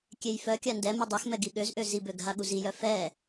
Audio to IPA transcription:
kʲ e j f œ kʲ a n d ɛ m u dˤ e x m ɛ ɡ i ɠ ø z ʔ ø z i b ø ɡ ɦ a ɠ u z i j œ f ɛ

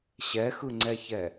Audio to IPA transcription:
ɕ ɛ x ɯ ŋ͡ǀ ɛ ç ɛ

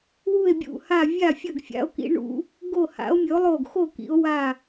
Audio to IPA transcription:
w u˦˨ e̯ bʲ ṵ˦˨ h a˦˨ vʲ a˦˨ fʲ ɐ˦˨ ɡ fʲ a̰˨˦ o̯ k ḭ˨˦ ɳ ṵ˨˦ | ɡ o˦˨ h a̰˨˦ o̯ mʲ ɵ˨˦ o̯ lˠ o˦˨ ɡ x o˦˨ k ḭ˨˦ o̯ w a˦˨

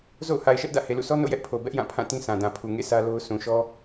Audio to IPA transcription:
z o̰˦˨ ʊ̯ h a˨ ɪ̯ ʃ ɛ˦ ʔ d ä̰˦˨ h e˨ l ṵ˦˨ sʰ ɔ˦ n o̰˦˨ j ɛ˦ ʔ pʰ o˨ b ɛ˦ ʔ j ã˦˨ pʰ ã˦˨ t ĩ˦ s ã˨ d ã˨ pʰ u˨ ŋ ḛ˦˨ sʰ ä˦ l o˦ ʊ̯ s ũ˨ ʃ ɔ˦

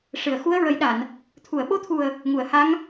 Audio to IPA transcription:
ʂ ɨ˨˩˨ ə̯ x u˧˥ ə̯ ɹ ə˨˩˦ j ɗ a˨˩˨ n | t̪ʰ u˨˩˨ ə̯ ɓ o˧˥ t̪ʰ u˨˩ ə̯ | ŋ u˨˩˨ ə̯ h a˧˥ ŋ

